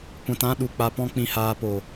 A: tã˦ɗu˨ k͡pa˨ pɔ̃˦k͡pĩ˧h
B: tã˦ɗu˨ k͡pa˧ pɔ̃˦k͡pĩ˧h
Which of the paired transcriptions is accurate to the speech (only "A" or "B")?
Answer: B